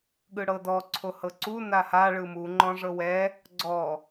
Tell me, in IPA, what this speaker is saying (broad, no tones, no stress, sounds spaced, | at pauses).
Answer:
ɠ ɯ ɽ ɤ d ɔ ǀʰ o h ɤ ǀ u n a h a ɭ ɯ m u ŋ͡ǃ ɔ̃ ʐ ɤ w ɛ | ɡ͡ǀ ɔ